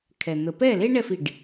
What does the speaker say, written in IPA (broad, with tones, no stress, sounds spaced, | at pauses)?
kʰ ɛ˩ n̪ ə˩ p ɛ˥˩ l e˥ ɳ ɛ˥˩ f i˩ ɖ